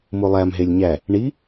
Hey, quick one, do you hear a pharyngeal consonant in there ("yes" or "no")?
no